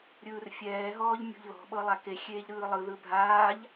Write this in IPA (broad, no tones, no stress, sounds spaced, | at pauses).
ɾʲ ɯː r fʲ ɛː ɦ ɔː ʎ mʲ ṳ ʎ ð ɔ̤ ɓ ɤ lˠ a k e xʲ eː ʎ ɾ ɯː lˠ ɯ ð ɯ bʱ aː ʎ